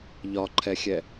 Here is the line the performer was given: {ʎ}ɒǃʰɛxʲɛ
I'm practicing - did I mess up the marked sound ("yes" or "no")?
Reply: no